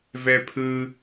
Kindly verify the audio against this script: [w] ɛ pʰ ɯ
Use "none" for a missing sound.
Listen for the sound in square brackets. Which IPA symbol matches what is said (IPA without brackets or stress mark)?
v